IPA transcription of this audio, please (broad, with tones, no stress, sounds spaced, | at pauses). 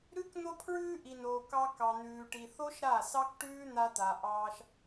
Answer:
ɾ ʉ˦ k n̪ o˧ pʰ ɹ ʉː˧ ʔ i˨ n oː˨ k ɑ˧ k ɑ˨ n̪ ʉː˨ ʈ i˨ θ o˦ ʃ ɾ a˦˨ s ɑ˦ k ʈ ʉː˦ n̪ a˧ t̪ a˨ ʔ ɑː˧ ʃ